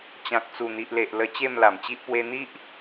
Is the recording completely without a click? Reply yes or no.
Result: yes